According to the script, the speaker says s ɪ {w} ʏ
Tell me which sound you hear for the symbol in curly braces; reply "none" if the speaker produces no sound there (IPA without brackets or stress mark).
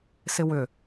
w